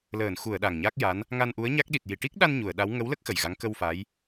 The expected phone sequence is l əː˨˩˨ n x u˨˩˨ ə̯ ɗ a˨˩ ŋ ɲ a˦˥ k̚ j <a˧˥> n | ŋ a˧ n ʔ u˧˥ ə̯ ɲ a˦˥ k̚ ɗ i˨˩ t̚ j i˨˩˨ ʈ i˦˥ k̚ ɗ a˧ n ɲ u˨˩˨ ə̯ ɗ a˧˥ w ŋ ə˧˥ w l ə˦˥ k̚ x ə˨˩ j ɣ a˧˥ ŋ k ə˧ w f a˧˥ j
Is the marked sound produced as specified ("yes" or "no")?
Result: yes